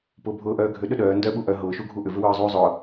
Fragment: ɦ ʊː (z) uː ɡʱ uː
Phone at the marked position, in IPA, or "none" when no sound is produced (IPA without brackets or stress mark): ʃ